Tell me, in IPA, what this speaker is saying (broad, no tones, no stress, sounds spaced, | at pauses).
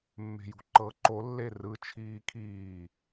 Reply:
mː e̤ j ṳ ǃ ɤ ǃ o lː e r ɯ t͡ʃʰ iː kʰ iː